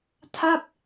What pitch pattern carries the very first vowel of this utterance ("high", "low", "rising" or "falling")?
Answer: falling